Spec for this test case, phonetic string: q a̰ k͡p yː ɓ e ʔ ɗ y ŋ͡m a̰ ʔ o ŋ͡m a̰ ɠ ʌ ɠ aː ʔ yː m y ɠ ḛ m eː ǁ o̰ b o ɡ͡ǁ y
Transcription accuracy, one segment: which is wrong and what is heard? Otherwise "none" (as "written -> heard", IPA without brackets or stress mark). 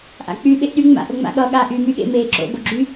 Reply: q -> ʔ